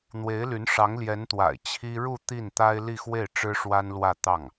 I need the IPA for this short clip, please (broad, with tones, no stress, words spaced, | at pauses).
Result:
n̪we˧˥ɪ̯ly˧˥n ʂɑ˧˥ŋljɛ˧˥nt̪wa̰˨˩ɪ̯ t͡ɕʰi˥ ɻu˥˧ t̪i˥˩nt̪a˥ɪ̯ li˥˧xwe˥˩ɪ̯ ʈ͡ʂɻ̩˥ʂwa˥nlwä˥˧ t̪ɑ˥˩ŋ